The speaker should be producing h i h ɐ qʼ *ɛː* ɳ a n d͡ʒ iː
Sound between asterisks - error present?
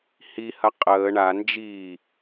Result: yes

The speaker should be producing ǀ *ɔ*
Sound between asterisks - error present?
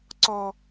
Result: no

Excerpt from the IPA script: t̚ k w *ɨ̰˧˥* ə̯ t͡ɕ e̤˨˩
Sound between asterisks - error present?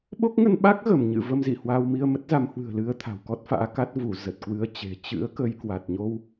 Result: yes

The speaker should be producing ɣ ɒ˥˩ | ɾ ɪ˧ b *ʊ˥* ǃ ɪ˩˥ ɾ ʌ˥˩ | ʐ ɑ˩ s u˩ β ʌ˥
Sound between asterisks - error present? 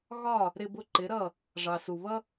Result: yes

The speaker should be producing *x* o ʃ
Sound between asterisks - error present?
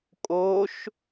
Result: yes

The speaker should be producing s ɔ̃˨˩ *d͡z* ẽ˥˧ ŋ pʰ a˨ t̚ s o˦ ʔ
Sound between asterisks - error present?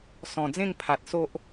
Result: no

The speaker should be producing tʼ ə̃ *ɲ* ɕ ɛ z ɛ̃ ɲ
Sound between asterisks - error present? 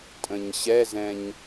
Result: no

